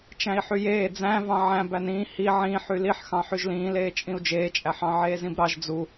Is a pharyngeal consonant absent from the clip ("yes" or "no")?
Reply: no